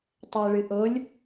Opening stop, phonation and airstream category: plain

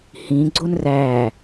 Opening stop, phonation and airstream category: click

